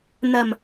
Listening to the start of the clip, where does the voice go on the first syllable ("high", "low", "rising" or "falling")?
low